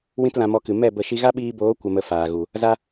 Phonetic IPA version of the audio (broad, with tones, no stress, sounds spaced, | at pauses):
w ĩ˦ t l ã˧ m ɔ˧ k ɨ˨ m ɛ˦˨ b ə˦˨ ʃ i˦ ɣ a˦ ɓ iː˧ b oː˨˦ kʷ ə˧ m ə˧ f aː˨ ɣ u˨ | z a˦